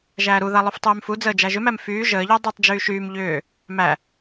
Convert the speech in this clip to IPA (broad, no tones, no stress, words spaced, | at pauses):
ʒæːɾuða lˠuftˤyːmfud͡zəː d͡ʒæʒʏmæm fyː ʒəːʎʏː dˤytˤd͡ʒyː ʃyːm ʎʏː | mæ